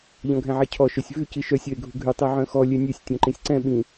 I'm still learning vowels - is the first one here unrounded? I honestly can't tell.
no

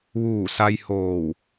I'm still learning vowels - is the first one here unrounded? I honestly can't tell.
no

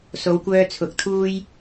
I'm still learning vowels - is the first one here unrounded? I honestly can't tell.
no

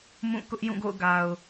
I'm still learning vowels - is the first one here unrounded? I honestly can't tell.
no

